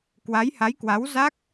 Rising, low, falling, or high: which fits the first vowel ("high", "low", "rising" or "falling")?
rising